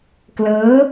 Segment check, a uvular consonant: absent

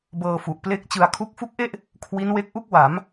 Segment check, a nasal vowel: absent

